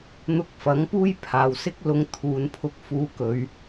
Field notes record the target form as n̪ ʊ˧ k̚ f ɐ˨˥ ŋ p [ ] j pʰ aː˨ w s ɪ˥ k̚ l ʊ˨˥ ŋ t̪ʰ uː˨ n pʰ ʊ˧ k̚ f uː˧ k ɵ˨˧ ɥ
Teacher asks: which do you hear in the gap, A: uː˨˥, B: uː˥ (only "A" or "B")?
B